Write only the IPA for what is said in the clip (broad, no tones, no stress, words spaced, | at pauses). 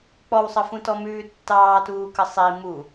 k͡pɔwsˤəfũtɔ mʉːtːɑːtuːkə sˤi mu